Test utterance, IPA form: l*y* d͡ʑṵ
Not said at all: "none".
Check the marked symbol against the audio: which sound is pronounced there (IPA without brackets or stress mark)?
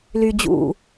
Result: y